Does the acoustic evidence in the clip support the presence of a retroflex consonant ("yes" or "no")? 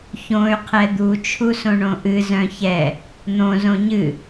yes